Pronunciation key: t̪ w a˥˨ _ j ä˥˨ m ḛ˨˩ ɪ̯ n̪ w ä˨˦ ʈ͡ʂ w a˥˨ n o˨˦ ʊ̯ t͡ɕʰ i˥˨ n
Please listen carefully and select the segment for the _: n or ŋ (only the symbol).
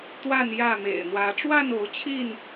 n